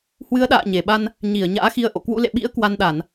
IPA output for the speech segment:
h w ɨ˨˦ ə̯ ɗ a̰ː˧˨ ɲ e˨˩ ɓ a˧ n | ɲ i˧˩ ə̯ ɲ a̰ː˧˥ x i˧ ə̯ ʔ o̰˧˨ k w ṵ˧˥ l ḛ˧˨ ɓ ḭ˧˥ ə̯ k w a˧ n ɗ a˧˩˨ n

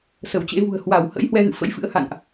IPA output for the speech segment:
s ə˧˩ w t͡ɕ ḛ˧˥ v ṳ˨˩ ə̯ h w a˧˩ w h ə̰˧˥ j h w ɛ˧ ɣ ɨ̰˧˨ f ə̰˧˥ j f ɨ̰˧˥ ə̯ h a̰˧˨ n ʔ

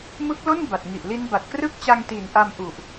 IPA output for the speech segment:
m ɯ˦˥ k̚ l o˥˩ n b a˨˩ t̚ ŋ i˨˩ ʔ l i˦˥ n b a˨˩ t̚ k r ɯ˥˩ k̚ t͡ɕ a˧ ŋ t i˨˩ n ʔ a˧ m ʔ u˨˩ ʔ

